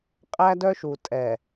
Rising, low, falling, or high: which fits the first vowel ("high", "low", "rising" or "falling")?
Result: high